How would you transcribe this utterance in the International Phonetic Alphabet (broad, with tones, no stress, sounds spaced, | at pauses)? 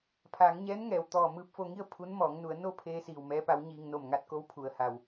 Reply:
pʰ aː˩˧ ŋ ɲ ɛː˧˥ n ŋ ɛː˩ w t̪ ɔː˧˩ m ɯː˧˥ p̚ f o˧ ŋ i˥˨ ə̯ pʰ u˧˥ n m ɔː˩˧ ŋ n u˩˧ ə̯ n o˥˨ pʰ eː˧ s iː˧˩ w m ɛː˧˥ p a˧˥ w ɲ iː˧ ŋ n o˧˩ m ŋ a˧˥ t̚ k o˧˥ w pʰ u˩ ə̯ h a˩ w